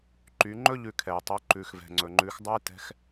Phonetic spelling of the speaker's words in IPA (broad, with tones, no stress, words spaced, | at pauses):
ǃy˩˧ŋ͡ǃɵ˥ ʎʉ˧kʰɛ˩j tˤʉ˩˧ ǃʉ˩xvɛ̤˩ŋ͡ǀɵ˩ ŋ͡ǃʉ˩˧x dˤɵ˥j tɛ̤˧˥x